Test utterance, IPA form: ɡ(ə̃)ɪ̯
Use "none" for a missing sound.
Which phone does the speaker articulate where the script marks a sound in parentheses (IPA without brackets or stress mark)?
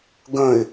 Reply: ə̃